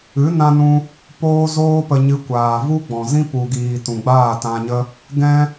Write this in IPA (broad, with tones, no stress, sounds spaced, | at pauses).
ɨ˨˦ n ã˧ n ũ˧ | p oː˦ z oː˦ p ə˧ ɲ ɨ˧ kʷ aː˨ v u˦ ɡ͡b ɔ̃˨ z ĩ˦ p u˨ ɡ iː˨ t ũ˨ ɡ͡b aː˦˨ t ã˧ ɲ ə˦ | ɡ ɛ̃˦